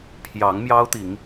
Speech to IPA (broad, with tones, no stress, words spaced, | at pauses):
pʰjɑ˨˦ŋmjɑ˦ʊ̯t̪i˨˦ŋ